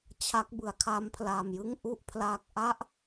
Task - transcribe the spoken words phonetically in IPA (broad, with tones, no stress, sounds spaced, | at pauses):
t͡ɕʰ a˦˥ k̚ b ɯ˩˦ a̯ kʰ a˦˥ m pʰ l a˨˩ m j ɯ˥˩ ŋ ʔ u˥˩ ʔ pʰ l aː˦˥ k̚ ʔ a˦˥ ʔ